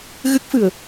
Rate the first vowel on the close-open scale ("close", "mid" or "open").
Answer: close